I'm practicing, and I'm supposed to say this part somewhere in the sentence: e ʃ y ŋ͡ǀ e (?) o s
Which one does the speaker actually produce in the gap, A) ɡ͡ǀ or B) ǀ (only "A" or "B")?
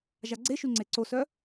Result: B